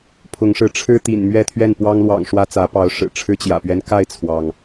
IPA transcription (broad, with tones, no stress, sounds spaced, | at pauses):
pʰ ʊ˨˦ ŋ ʂ ɻ̩˨˦ ʈ͡ʂʰ ɻ̩˦ t̪ ḭ˨˩ n m ɥ ɛ˥˨ t̪ʰ ɥ ɛ˥˨ n p w ɑ˦ ŋ l w ɑ̰˨˩ ŋ ʂ w ä˦ t͡s ä˨˦ p ɑ˨˦ ʊ̯ ʂ ɻ̩˨˩ ʈ͡ʂʰ ɻ̩˦ t͡ɕ j ä̰˨˩ p ɥ ɛ˦ n k a˥˨ ɪ̯ t͡sʰ w ɑ˩ ŋ